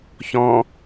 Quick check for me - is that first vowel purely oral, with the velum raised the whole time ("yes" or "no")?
no